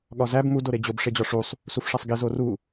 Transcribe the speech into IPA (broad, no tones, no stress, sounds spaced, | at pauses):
ɠ ɒ z æ b m u d o ɾ e d͡ʑ o b ʂ e d͡ʑ ɒ ʂ u sˤ | s u f ʂ æ sˤ ɡ i z o r u